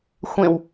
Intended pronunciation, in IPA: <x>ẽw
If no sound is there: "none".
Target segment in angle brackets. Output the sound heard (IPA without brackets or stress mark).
xʷ